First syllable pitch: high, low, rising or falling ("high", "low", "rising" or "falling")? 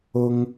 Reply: high